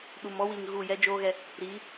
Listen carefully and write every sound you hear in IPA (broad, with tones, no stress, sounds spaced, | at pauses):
ɗ u˨ m ɔ˦ w i˨ ŋ ɣ u˦˨ j ɛ˦ d͡ʒ oː˦ ɣ ɛ˦ | ɾ iː˨˦